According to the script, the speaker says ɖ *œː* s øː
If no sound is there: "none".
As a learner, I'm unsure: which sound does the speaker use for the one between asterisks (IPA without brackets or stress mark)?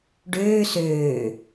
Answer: øː